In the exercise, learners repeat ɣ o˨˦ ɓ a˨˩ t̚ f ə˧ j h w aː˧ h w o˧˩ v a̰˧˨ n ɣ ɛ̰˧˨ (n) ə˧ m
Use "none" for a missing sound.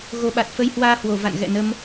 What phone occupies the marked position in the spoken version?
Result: n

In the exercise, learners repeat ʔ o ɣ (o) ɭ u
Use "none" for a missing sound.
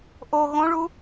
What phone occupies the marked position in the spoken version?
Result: õ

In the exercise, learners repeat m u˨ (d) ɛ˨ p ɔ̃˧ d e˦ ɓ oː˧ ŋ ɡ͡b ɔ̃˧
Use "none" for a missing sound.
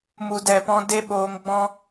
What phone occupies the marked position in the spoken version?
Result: d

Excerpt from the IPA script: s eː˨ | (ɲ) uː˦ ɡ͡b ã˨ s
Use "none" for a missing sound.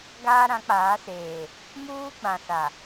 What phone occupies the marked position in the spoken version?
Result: m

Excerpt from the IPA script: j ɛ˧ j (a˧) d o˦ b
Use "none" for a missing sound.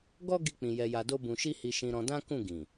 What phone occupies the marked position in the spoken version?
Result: a˧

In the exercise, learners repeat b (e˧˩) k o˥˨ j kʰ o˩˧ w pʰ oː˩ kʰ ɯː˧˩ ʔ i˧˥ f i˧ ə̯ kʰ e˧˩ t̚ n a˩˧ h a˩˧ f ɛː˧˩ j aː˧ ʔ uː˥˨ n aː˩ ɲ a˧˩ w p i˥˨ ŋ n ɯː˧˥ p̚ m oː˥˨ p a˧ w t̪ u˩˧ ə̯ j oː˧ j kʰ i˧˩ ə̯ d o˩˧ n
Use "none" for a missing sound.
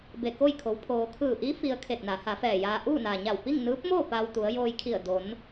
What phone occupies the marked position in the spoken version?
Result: e˧˩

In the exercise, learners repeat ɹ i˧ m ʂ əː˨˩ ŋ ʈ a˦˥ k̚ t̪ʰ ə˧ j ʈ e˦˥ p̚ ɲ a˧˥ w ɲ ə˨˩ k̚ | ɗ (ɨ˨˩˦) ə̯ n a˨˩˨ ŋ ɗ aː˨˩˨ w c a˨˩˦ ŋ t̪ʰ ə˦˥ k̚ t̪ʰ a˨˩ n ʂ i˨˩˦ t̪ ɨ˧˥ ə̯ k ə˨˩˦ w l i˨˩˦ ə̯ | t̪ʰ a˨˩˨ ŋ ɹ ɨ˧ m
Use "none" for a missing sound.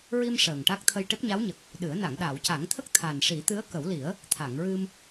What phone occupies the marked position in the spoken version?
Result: ɨ˨˩˦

